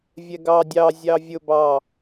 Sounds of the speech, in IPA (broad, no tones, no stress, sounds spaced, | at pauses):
vʲ ɛ ɡ ɑ dʲ ɑ zʲ ɑ vʲ ʊ b ɑ